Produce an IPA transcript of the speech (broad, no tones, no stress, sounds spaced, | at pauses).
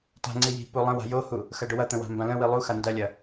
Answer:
t a̤ ŋ͡ǀ i j i̤ p u lˠ ə̃ w a̤ j o h u | x ɐ ɖ ʊ w ɐ t̪ ə̃ w a̤ m b ã l ə̃ w i lˠ u x a n d ɐ lʲ ɐ